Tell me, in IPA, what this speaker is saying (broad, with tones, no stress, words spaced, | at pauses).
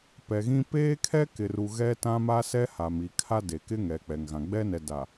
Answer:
pɛ˨ɣĩ˦ peː˦kʰɛ˦ kɪ˨ru˨ ɣɛ˦tã˦ma˦ sɛ˦ha˨m i˨kʰa˦de˨kɪ˦ ŋɛ˨k͡pɛ˨ŋɣã˨ ɡ͡bɛ˦nɛ˨da˨